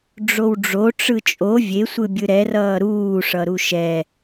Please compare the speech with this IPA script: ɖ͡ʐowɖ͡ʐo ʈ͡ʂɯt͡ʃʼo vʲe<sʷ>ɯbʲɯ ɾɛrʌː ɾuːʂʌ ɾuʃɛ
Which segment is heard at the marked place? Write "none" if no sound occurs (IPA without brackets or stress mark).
sʷ